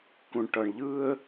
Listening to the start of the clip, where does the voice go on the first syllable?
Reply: low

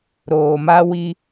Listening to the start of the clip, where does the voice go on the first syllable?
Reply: low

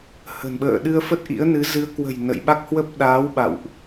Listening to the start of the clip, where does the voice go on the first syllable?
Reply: low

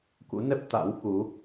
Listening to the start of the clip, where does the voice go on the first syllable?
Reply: rising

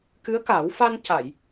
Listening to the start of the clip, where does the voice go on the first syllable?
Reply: rising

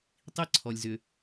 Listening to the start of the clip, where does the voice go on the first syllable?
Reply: high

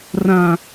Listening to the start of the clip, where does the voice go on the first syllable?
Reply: low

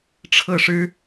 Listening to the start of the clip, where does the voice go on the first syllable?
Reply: falling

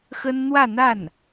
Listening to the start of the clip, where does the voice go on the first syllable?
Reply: high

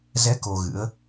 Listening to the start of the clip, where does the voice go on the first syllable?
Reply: rising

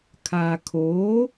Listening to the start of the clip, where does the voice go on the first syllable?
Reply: low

